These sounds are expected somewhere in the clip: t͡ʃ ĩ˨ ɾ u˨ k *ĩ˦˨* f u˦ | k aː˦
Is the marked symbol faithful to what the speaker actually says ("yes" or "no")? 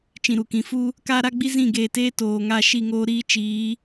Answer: no